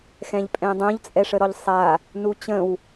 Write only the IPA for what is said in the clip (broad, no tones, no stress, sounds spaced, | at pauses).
x ɛ̃ ʎ pʼ ɛ̃ dˤ õ ʎ t͡sʼ ɛ ʂ ə ɾ ɔ ʎ sˤ a | n u t͡ɕ ə̃ w